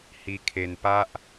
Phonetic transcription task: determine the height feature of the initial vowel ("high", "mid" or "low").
high